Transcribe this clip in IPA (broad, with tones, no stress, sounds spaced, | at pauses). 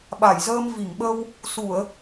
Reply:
ɓ a˧˩ j z əː˧ m v i˧˩ ŋ ɓ ə˧ w | s u˧˩˨ ə̯